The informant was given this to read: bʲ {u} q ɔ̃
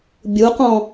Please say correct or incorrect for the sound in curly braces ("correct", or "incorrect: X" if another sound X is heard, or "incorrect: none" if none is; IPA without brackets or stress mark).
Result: correct